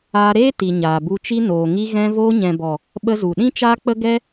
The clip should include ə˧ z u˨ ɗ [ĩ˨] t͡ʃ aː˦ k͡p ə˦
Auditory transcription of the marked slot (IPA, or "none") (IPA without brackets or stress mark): ĩ˦